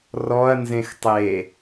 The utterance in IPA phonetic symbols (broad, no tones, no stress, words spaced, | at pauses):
rɔɐ̯ nzẽxtˤe